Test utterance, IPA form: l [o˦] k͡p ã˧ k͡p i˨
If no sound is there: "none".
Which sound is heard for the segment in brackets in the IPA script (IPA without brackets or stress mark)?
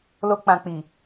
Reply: o˦